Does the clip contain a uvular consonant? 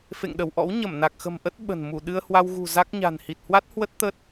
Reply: no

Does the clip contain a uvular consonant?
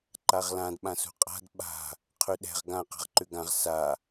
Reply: yes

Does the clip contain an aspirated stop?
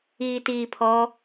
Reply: yes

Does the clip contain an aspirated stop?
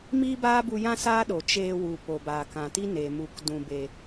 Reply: no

